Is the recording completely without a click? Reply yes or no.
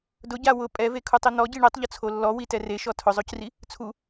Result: yes